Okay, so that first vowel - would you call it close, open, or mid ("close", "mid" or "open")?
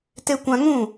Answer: mid